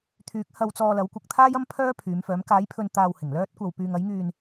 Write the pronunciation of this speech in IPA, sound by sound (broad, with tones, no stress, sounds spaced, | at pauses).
t̪ʰ yː˨˥ k̚ h ɐ˧ w t͡s ɔː˧ l ɐ˨˥ w kʷ ɪ˨˥ k̚ t̪ʰ aː˥ j ɐ˥ m pʰ œː˥ pʰ yː˨˧ m f œː˨˥ m k aː˨˥ j pʰ ɵ˧ n t̪ aː˧ w h ɪ˨˩ ŋ l œː˥ t̚ kʷ ɐ˧ w p yː˧ ŋ ɐ˨˥ j ŋ yː˧ n